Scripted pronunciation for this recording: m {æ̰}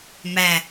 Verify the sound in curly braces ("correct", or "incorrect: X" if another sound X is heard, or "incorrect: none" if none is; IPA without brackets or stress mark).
incorrect: æ